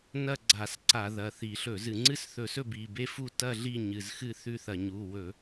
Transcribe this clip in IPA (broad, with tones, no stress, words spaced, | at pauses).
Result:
nɐ˥˨ɡ͡ǀa˧˩˧sǀa˧˩˧ ðɐ˩˧˩θi˧˩˧ɬɵ˧˩˧zɨ˧˩˧ ŋ͡ǀɨ˥˨sθɵ˧˩˧sɵ˥˨ bi˩˧˩be˥˨fu˥˨ tɐ˥˨ ɮi˥˨ ɲɨ˩˧˩zxɨ˥˨θʉ˥˨θɐ˧˩˧ ɲu˩˧˩wɵ˧˩˧